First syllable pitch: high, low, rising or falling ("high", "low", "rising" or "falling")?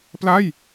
falling